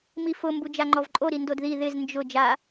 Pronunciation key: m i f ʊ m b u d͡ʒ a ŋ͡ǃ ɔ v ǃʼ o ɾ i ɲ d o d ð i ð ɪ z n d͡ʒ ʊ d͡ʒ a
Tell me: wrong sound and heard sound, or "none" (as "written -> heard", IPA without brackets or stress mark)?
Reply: ɲ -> n